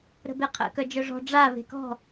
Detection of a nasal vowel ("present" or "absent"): absent